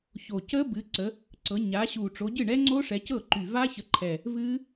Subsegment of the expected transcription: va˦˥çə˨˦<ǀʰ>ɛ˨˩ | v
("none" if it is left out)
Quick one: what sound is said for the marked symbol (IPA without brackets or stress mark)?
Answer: ǃʰ